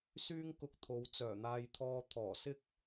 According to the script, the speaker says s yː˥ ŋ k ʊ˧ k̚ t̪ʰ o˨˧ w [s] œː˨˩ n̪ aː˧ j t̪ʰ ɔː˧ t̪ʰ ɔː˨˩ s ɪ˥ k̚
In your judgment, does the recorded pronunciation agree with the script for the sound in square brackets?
no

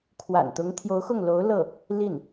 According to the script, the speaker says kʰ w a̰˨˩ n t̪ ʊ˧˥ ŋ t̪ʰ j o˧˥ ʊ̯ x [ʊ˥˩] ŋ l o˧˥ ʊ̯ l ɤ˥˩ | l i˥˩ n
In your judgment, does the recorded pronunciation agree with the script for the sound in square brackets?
yes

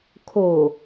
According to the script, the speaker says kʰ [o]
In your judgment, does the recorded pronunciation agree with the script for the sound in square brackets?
yes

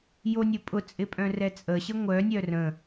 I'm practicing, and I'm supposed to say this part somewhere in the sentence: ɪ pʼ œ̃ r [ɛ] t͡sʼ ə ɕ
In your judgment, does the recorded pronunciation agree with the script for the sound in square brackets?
yes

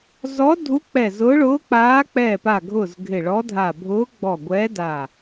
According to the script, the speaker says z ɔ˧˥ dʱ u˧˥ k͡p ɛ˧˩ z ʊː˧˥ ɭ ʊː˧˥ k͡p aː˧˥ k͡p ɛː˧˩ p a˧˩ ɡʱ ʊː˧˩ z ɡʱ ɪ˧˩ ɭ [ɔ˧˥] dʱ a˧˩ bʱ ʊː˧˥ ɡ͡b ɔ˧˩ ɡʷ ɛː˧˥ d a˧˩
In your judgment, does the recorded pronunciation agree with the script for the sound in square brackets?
yes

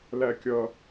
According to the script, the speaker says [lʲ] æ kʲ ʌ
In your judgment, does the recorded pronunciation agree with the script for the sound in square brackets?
no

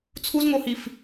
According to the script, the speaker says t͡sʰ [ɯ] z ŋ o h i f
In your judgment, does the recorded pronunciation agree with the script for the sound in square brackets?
no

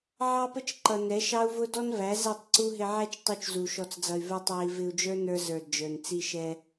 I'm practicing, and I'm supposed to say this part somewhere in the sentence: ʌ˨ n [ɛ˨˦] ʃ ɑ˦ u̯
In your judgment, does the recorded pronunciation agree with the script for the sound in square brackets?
yes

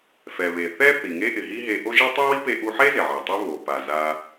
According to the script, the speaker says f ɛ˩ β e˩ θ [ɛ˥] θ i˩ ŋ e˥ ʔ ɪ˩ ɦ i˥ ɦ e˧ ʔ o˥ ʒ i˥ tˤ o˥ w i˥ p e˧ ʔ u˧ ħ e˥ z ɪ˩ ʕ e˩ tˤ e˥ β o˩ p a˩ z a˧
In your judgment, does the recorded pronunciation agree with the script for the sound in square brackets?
yes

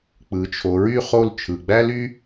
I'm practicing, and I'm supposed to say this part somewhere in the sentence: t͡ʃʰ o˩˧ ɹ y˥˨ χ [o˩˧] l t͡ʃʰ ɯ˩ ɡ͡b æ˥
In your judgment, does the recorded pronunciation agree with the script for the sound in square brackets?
no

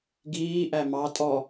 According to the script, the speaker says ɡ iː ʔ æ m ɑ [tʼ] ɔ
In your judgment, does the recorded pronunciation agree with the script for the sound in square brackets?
yes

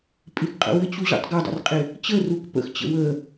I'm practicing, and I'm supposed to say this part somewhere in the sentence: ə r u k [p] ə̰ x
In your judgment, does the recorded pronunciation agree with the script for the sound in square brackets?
yes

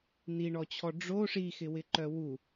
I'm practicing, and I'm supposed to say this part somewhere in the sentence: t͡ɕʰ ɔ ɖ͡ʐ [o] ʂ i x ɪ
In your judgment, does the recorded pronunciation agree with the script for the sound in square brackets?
yes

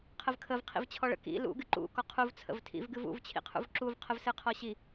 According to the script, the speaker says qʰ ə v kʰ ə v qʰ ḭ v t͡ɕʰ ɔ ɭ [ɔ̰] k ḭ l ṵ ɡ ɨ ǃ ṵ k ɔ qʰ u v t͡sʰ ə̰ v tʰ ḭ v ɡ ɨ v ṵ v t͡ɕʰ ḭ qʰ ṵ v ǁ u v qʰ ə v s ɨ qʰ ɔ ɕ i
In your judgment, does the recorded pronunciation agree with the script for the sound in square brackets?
no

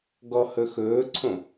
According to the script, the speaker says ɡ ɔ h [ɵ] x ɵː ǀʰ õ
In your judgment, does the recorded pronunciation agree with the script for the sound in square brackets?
yes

